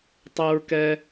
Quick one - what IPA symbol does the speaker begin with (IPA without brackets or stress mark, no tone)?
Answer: tˤ